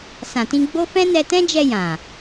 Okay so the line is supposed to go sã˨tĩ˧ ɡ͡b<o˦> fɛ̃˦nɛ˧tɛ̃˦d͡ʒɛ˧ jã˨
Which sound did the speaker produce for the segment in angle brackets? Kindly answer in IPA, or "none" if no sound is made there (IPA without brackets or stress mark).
o˦